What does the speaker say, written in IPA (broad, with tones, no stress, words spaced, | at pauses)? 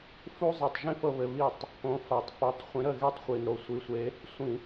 fu˥zˤi˧˩tˤʒĩ˥ fɤ˥βɘ˨˥βi˥˩tˤ | põ˨˥fa˧˩tˤ fo˨˥tˤ χʷĩ˨˥ɾə˥˩ɣe˥˧tˤχʷi˧˩n ɾo˥˩sʷi˨˥sʷe˨˥ | sʷĩ˧˩˧